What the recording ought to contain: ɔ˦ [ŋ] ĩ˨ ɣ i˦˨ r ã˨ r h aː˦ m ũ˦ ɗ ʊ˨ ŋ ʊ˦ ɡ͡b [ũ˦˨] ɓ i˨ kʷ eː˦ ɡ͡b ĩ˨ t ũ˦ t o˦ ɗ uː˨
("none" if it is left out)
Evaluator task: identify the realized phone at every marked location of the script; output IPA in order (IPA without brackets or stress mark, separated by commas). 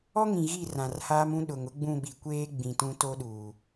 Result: ŋ, ũ˦˨